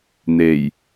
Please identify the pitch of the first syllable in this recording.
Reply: low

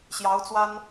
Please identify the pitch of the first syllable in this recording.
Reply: rising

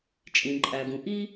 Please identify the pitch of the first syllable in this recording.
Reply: low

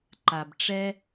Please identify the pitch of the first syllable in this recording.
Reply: low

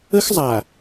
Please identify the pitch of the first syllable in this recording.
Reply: high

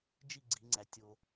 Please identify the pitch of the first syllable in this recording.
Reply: falling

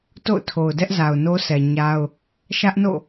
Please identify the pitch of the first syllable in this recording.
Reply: falling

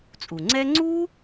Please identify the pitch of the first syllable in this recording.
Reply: low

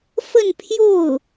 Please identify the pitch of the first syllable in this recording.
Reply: falling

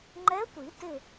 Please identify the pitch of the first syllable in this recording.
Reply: rising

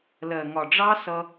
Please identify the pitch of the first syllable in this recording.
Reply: low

